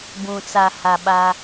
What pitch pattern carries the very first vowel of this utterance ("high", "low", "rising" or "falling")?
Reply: low